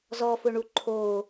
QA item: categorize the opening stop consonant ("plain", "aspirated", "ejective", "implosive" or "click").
click